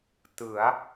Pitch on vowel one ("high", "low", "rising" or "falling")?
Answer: rising